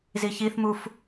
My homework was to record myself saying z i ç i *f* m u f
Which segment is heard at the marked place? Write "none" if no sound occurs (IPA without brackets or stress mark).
θ